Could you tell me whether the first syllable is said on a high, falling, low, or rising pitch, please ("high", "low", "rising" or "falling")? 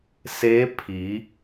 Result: rising